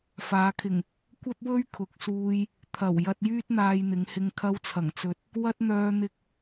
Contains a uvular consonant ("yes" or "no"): no